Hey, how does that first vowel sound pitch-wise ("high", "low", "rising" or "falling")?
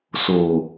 low